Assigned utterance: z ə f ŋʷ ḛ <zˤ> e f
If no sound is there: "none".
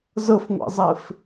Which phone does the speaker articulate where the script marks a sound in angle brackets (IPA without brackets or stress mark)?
zˤ